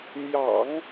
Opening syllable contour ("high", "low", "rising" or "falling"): low